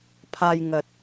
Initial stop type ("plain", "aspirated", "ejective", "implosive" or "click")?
aspirated